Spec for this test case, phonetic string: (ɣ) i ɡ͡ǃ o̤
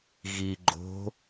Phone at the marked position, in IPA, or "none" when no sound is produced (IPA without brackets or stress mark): ɣ